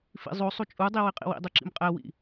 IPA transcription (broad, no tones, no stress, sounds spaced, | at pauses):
f ḭ zˤ o sˤ u t͡ʃʼ u dˤ i w i qʼ ḭ w ḭ dˤ u ǁ ḭ m qʼ ɛ w ḭ